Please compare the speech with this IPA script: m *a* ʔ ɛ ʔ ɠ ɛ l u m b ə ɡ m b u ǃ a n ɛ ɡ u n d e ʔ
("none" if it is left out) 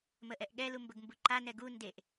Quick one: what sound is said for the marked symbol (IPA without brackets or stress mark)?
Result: ə